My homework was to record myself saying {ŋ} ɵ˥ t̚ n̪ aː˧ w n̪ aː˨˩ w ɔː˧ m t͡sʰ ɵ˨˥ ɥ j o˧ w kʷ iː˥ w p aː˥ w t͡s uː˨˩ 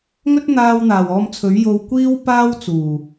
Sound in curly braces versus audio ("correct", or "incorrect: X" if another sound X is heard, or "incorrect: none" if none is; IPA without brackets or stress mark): correct